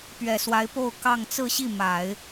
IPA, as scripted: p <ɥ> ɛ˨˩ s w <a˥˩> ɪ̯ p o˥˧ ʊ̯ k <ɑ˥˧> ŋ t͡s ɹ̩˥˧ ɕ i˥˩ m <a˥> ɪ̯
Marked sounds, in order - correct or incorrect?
correct, incorrect, correct, incorrect

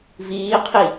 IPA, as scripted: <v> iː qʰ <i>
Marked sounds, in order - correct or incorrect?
correct, correct

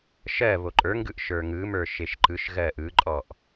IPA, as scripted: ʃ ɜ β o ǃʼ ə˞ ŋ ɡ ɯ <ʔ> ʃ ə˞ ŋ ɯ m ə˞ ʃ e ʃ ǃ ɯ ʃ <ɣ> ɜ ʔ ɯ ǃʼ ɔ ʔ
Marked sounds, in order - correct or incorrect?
correct, correct

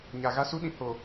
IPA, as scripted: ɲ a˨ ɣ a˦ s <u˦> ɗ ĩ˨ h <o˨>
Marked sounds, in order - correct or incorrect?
correct, correct

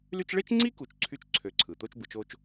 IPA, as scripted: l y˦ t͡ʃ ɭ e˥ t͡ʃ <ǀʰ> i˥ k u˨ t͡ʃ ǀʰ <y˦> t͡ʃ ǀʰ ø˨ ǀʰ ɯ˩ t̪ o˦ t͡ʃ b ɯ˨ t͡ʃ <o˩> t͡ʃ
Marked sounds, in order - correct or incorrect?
incorrect, correct, incorrect

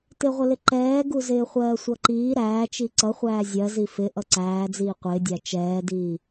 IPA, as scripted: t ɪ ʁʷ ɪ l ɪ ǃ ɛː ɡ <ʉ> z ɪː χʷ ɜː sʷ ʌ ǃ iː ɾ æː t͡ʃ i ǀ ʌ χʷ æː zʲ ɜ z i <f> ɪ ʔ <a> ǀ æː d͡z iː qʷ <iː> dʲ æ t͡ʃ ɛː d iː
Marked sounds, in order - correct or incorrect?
incorrect, correct, incorrect, incorrect

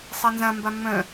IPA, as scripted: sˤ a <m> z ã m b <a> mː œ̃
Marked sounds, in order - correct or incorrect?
incorrect, correct

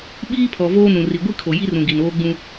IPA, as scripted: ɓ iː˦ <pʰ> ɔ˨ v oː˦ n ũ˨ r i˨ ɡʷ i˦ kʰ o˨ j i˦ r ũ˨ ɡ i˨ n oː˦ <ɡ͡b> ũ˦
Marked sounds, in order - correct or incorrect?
correct, correct

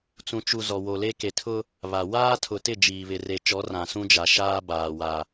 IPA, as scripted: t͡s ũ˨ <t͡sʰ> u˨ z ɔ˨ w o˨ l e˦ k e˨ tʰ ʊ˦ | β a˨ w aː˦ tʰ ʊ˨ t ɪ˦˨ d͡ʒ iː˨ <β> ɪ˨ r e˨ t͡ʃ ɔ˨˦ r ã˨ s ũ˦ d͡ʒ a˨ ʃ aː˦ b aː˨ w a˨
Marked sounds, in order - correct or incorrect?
incorrect, correct

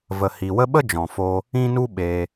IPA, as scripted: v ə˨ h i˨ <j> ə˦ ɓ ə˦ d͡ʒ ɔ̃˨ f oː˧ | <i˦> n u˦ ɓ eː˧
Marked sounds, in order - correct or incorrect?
incorrect, incorrect

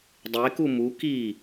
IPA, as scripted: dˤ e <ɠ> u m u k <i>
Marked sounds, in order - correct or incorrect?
incorrect, correct

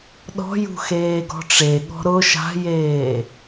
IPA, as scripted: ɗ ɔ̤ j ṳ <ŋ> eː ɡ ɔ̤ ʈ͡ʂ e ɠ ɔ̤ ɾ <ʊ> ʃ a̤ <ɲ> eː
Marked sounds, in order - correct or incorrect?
incorrect, correct, incorrect

